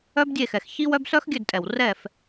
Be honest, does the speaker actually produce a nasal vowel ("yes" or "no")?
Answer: no